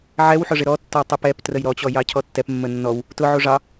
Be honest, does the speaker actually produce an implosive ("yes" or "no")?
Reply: no